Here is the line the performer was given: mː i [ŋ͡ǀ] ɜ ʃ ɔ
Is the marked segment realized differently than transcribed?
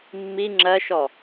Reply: yes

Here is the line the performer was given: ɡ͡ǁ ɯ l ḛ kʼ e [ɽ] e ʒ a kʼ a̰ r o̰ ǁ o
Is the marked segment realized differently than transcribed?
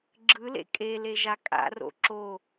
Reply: yes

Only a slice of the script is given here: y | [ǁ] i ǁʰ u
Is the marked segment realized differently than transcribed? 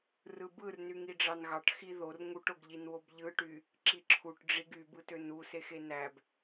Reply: no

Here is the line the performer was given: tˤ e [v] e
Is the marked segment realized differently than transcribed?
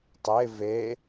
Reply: no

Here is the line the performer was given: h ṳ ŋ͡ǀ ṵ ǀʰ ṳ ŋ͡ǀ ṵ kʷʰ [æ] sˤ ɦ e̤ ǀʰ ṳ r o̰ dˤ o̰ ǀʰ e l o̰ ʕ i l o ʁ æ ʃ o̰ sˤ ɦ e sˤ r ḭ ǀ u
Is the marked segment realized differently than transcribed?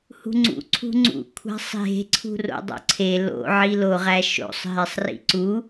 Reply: yes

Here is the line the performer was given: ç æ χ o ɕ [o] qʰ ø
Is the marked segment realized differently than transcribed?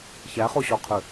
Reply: yes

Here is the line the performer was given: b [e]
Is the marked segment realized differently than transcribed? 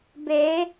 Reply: no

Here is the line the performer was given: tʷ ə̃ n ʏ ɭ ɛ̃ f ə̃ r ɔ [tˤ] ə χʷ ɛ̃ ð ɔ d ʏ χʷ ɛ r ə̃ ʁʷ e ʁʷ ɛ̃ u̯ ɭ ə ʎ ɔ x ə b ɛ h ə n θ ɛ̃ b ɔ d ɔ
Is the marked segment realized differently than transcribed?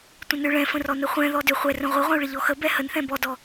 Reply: yes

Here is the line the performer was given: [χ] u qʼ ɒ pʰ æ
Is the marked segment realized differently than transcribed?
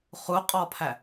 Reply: no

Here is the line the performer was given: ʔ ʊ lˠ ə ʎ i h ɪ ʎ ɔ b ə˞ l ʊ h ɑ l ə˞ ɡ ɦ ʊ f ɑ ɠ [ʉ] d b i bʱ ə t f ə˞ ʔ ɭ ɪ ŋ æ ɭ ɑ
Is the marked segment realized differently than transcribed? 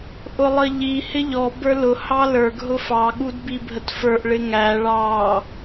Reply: yes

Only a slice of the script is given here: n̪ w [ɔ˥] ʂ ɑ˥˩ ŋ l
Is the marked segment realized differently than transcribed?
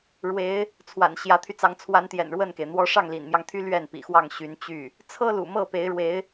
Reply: no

